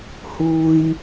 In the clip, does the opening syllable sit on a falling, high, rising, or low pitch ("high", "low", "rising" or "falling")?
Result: high